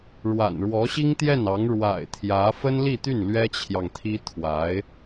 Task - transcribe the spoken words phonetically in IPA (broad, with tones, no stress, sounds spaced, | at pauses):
ɻ w a̰˨˩ n ɻ w ɔ˧˥ ɕ i˥ ŋ t̪ j ɛ˥˩ n ɑ˧˥ ŋ ɻ w a̰˨˩ ɪ̯ t̪ʰ j ä˧˥ f ə˥ n l i˥˧ t̪ y˥˩ n l ɥ ɛ˥ t͡ɕʰ j ɑ˨ ŋ t̪ʰ i˥ t̪ʰ w a˧˥ ɪ̯